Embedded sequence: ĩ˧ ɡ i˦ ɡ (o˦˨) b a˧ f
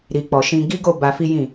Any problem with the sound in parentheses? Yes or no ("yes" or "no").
no